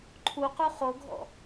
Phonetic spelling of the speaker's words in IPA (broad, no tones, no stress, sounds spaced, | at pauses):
ǃʰ u q u χ o ɡʱ ɔ̰